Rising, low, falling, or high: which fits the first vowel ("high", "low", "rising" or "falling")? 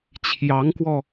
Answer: rising